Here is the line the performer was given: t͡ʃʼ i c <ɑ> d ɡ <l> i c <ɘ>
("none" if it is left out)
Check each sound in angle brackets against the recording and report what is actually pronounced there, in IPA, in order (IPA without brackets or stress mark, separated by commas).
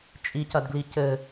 ɐ, l, ɘ